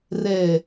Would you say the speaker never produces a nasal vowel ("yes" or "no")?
yes